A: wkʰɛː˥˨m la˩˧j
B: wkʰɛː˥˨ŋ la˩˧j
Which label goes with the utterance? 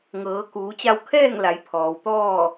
B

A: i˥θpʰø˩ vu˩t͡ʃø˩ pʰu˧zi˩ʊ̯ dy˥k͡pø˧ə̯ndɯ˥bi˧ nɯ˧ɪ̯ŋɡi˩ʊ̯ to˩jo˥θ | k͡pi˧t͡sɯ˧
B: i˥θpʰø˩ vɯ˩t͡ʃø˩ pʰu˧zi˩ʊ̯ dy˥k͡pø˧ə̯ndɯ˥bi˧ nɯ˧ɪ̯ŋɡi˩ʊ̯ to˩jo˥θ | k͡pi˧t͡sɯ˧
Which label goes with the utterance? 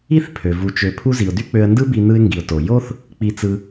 A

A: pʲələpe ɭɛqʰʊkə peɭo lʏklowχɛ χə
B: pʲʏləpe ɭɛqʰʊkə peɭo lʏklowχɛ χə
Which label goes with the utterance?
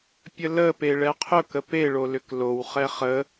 A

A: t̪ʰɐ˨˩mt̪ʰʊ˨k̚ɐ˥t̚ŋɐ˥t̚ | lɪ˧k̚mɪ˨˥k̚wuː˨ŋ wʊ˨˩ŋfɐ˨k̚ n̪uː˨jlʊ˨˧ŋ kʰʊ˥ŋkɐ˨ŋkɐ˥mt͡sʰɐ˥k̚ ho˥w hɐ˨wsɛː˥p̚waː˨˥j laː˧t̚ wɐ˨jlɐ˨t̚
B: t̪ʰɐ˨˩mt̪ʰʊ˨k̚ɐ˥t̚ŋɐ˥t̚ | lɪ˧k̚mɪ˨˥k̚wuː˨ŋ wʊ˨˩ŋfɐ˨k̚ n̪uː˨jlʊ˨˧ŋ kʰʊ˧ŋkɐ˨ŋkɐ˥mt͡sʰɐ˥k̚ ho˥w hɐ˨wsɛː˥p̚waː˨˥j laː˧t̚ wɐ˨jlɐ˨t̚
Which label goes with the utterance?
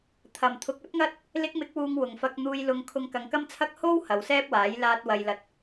B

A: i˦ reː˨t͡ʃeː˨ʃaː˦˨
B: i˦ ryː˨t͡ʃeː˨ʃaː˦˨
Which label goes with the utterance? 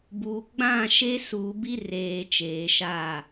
A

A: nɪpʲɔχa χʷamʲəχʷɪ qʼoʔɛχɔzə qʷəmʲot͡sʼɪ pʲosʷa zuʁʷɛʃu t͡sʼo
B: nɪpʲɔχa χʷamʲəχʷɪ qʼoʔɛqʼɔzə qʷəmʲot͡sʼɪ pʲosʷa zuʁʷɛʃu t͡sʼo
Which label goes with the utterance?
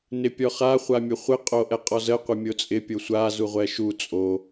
B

